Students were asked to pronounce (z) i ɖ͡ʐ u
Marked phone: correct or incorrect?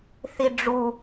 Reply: incorrect